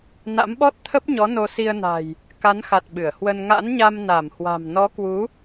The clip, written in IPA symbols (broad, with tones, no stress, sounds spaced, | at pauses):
n a̰˧˥ m ɓ ɔ˦˥ t̚ t̪ʰ ə˦˥ p̚ ɲ ɔ˨˦ n o˧ s i˧ ə̯ n a̤˨˩ j | k a˨˦ n x a˨˩ t̚ ɓ ɨ˧˩ ə̯ h w ə˧ n ŋ a̰˧˥ n ɲ a˧ m n a˧˩ m h w a̤˨˩ m n ɔ˨˦ k w u˨˦